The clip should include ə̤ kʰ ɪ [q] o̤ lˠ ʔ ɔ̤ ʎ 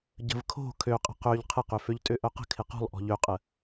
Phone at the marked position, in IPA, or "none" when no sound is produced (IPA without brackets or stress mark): q